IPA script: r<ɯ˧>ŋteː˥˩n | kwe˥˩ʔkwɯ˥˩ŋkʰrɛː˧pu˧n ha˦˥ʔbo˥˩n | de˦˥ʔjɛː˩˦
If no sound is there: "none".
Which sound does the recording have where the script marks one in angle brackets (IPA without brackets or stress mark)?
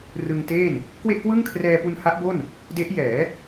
ɯ˧